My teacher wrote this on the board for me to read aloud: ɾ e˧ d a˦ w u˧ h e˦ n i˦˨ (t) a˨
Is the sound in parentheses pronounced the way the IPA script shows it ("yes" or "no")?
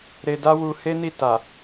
yes